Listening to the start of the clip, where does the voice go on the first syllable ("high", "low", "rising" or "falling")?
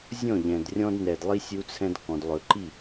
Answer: falling